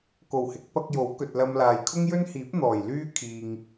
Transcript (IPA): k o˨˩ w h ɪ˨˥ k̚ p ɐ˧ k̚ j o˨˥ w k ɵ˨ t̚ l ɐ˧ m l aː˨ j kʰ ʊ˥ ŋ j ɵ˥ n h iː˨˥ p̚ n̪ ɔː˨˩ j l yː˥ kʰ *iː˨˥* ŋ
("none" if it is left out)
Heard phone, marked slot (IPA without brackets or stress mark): iː˨